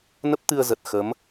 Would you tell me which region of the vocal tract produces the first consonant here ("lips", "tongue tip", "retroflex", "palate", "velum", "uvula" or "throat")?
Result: tongue tip